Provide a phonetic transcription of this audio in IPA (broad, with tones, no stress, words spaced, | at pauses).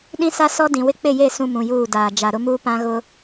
ɗĩ˦sa˦ sɔ˦dĩ˨wɪ˦ k͡pɪ˦˨je˦˨ sũ˦mũ˨juː˦˨ daː˨ d͡ʒa˨ɾʊ˦muː˦ pã˦ɣʊ˦